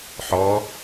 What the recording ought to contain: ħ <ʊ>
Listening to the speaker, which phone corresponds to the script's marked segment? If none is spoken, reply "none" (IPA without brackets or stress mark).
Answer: ɔ